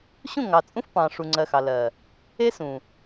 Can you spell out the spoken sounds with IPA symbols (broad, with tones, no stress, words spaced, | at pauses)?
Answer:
ɕũ˦˨ŋɑ˨t͡sʼũ˦f pɑ̃˨ʂu˨ŋ͡ǀɜ˨ xɑ˨ lɜ˨ | e˦sũ˨